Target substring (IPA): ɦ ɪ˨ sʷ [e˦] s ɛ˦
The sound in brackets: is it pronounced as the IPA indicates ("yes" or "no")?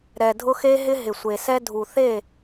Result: no